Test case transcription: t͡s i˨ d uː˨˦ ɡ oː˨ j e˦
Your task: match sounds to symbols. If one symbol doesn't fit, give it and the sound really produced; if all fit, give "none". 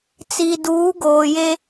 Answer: none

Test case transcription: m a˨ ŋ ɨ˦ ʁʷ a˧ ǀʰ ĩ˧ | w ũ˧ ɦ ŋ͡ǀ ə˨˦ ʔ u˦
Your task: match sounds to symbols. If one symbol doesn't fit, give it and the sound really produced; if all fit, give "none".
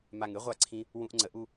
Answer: ɦ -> ʔ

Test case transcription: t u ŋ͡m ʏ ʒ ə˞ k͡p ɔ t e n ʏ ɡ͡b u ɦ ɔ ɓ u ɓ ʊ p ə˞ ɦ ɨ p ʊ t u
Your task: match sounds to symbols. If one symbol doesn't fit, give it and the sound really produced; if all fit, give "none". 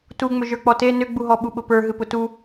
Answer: none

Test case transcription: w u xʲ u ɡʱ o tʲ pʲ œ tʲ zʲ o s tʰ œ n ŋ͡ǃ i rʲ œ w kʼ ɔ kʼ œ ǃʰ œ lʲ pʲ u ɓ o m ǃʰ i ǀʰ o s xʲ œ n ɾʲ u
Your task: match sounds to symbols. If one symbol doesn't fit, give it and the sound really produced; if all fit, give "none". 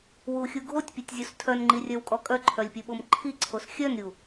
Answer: none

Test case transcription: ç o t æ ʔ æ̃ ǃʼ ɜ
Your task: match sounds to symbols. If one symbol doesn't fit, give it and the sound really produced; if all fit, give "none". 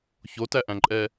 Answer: ɜ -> ɛ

